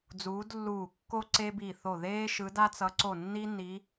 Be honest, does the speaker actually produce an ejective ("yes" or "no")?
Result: no